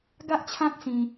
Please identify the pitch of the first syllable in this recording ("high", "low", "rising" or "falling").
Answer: high